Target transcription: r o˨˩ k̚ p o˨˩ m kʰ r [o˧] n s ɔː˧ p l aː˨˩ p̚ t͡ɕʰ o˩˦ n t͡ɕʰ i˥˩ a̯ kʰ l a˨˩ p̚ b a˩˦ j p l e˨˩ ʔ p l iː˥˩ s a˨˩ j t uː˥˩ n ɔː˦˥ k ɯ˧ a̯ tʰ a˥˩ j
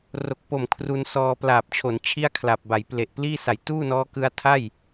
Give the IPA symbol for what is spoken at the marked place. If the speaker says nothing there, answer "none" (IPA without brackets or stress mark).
u˧